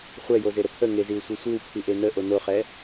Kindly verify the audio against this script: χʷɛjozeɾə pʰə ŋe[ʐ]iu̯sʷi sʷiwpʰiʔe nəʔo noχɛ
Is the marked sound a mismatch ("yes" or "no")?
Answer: yes